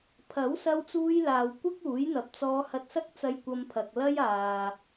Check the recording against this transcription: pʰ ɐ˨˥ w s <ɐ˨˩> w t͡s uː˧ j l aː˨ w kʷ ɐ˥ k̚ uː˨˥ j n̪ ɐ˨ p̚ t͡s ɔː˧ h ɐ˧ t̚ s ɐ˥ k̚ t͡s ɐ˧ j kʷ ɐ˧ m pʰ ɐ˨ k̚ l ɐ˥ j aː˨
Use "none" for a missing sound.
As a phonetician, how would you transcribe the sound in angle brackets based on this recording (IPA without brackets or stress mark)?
ɐ˧